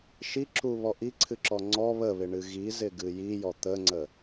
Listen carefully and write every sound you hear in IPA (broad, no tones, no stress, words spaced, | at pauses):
ʃiǁuβɔ ʔiǀʰɨǁɔ ŋ͡ǀɔ βəβɪɳɨ ɣizɪɡɨ jijɔ t̪əŋ͡ǀə